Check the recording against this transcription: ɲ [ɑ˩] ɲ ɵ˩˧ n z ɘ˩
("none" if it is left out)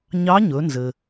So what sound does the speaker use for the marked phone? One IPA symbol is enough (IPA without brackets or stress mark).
ɑ˧˥